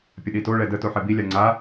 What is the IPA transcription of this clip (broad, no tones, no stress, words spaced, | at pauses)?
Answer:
pʲəɗitoɭɛ də toħɛbilʲa ŋ͡ǀa